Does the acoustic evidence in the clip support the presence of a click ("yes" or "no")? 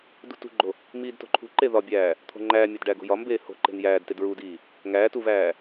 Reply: yes